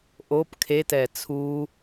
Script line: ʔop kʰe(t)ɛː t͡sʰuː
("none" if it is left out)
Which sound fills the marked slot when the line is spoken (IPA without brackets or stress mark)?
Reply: t